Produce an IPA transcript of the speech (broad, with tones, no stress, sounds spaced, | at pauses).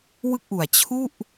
w ɯ˥˩ k̚ ʔ u˨˩ a̯ t͡ɕʰ u˥˩ ʔ